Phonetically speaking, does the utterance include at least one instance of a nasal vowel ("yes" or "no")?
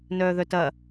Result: no